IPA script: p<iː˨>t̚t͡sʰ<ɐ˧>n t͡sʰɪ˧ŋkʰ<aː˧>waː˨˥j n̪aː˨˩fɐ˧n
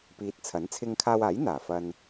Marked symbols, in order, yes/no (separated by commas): yes, no, yes